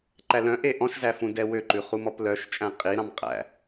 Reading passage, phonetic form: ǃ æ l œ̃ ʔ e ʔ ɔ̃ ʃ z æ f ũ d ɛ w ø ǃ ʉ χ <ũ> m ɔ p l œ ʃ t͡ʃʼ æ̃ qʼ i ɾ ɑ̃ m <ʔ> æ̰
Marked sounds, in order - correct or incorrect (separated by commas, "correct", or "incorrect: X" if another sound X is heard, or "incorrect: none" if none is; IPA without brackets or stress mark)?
incorrect: u, incorrect: qʼ